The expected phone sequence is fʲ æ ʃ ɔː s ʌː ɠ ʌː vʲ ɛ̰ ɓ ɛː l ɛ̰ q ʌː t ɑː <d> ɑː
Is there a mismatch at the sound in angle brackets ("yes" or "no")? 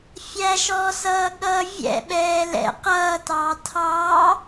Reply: yes